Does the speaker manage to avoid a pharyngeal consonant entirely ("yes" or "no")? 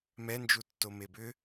yes